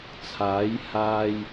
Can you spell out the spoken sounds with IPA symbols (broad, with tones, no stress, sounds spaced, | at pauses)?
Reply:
t͡sʰ aː˨˥ j h aː˧ j